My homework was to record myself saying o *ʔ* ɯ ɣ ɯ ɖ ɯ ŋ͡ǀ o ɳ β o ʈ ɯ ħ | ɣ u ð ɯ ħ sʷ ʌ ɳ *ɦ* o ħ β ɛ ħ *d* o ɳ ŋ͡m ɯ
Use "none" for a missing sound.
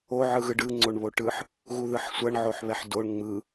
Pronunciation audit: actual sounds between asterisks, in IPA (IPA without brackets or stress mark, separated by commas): ʕ, ʕ, d